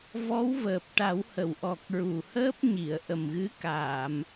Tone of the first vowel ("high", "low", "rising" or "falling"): rising